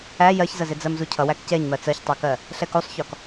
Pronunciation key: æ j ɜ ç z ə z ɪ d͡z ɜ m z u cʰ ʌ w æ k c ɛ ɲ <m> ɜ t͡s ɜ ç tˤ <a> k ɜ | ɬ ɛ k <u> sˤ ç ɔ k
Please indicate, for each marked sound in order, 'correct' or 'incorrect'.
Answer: correct, incorrect, correct

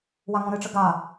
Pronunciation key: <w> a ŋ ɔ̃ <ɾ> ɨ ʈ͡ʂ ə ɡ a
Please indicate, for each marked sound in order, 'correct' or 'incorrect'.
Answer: correct, correct

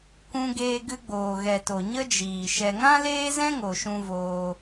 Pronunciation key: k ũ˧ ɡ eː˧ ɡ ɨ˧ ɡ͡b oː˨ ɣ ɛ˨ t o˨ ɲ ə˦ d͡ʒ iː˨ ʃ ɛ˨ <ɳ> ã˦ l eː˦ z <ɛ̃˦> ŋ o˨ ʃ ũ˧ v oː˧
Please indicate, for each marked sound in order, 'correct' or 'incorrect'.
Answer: incorrect, correct

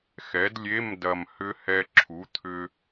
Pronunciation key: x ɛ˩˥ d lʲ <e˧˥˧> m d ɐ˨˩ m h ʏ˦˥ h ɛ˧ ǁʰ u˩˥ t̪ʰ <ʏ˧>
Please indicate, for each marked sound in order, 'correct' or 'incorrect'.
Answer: correct, correct

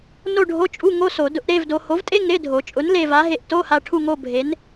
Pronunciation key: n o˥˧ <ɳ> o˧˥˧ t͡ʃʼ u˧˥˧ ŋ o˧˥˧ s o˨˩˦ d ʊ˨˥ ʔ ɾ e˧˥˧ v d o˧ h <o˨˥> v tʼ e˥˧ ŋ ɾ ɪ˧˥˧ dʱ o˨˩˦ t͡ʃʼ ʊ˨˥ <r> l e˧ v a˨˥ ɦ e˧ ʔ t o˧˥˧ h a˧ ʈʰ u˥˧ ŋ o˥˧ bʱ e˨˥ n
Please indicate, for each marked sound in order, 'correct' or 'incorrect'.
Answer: incorrect, correct, incorrect

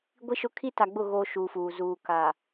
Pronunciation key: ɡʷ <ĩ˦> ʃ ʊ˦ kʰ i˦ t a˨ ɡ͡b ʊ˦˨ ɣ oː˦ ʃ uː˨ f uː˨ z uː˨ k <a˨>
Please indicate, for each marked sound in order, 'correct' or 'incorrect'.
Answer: incorrect, correct

